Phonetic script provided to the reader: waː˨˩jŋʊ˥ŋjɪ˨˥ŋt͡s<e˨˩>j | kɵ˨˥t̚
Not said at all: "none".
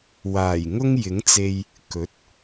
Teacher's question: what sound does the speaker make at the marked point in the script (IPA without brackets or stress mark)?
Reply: e˧